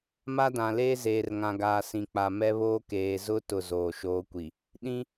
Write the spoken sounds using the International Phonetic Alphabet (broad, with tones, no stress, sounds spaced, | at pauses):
m a˦ d ã˨ l eː˦ z eː˨ r ŋ ã˨ ɡ aː˨ s ĩ˨ k͡p a˨ m ɛ˦ β oː˦ k eː˨ z ʊ˦ t ʊ˦˨ z oː˨ ʃ oː˦ kʷ i˨ | ɗ ĩ˦